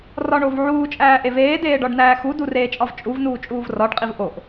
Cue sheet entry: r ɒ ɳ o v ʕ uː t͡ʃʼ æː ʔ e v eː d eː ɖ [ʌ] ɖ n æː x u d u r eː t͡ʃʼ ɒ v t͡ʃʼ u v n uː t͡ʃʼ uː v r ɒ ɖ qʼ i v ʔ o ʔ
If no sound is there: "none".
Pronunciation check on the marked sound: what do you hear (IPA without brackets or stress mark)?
ɒ